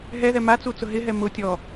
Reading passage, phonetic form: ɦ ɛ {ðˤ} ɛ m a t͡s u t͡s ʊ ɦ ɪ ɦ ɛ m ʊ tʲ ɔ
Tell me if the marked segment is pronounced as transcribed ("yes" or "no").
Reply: no